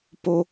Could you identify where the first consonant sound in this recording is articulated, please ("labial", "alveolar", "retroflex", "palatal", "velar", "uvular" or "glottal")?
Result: labial